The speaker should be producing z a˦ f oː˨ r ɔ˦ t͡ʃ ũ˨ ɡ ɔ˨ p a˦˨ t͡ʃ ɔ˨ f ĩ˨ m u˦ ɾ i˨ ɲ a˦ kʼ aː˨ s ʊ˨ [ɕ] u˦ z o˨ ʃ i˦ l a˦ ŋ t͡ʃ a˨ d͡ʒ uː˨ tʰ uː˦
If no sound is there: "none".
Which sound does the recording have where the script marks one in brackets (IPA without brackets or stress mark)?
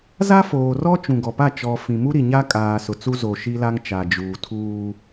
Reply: t͡s